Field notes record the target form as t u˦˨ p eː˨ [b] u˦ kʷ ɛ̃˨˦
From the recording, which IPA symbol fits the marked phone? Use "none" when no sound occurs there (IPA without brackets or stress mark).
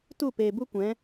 b